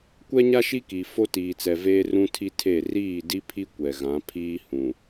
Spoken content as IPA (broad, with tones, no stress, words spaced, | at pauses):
kʷɛ˦ɲa˦ ʃi˦ki˨ fo˦tiː˨t͡sɛ˨veː˦ rũ˦tʰi˦tʰe˦˨ riː˦˨di˦pʰi˦ kʷɛ˨ɣã˨˦ pʰiː˦hũ˨